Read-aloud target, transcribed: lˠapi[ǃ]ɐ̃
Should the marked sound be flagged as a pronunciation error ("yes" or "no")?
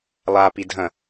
yes